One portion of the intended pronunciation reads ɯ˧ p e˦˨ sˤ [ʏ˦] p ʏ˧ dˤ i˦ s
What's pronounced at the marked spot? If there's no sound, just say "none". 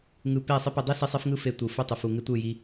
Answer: ɪ˦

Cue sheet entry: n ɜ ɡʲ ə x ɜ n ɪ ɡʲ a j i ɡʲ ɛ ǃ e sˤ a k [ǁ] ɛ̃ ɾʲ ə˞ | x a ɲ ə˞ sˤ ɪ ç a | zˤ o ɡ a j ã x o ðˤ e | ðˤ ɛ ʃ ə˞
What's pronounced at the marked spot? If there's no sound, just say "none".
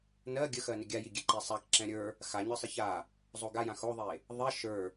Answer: ǁ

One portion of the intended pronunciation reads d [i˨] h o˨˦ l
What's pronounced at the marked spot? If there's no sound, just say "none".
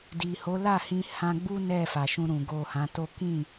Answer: i˨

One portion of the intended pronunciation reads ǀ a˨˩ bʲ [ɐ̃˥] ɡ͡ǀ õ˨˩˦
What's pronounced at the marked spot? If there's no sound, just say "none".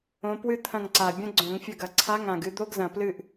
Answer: ɐ̃˥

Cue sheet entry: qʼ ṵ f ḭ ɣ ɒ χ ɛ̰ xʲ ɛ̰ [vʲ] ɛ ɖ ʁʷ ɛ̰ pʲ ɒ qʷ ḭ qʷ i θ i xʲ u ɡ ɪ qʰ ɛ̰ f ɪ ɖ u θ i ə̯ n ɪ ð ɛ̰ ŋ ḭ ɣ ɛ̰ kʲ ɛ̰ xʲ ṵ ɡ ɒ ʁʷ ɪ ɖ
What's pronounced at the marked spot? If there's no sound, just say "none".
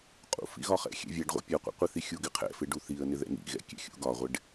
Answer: vʲ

